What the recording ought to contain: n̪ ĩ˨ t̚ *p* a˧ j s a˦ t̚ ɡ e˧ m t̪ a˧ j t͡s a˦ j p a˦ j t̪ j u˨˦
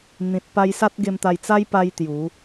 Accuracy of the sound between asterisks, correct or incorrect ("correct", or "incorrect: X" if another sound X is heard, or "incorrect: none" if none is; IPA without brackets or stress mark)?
correct